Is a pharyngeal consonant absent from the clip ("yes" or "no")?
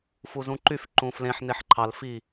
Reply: no